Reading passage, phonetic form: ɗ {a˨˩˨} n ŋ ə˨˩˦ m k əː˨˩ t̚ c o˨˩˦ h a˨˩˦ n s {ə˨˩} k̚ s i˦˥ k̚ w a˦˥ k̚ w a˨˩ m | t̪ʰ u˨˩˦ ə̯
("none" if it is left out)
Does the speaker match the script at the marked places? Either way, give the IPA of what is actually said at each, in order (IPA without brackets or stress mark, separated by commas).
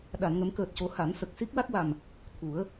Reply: a˨˩˨, ə˨˩